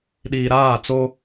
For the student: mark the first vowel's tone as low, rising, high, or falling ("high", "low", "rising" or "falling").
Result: low